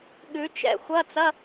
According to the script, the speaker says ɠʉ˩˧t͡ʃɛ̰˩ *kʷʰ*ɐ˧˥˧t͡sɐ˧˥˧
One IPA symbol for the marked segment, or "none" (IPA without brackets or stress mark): xʷ